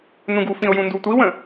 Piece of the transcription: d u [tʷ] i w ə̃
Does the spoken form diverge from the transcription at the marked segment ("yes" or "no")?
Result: no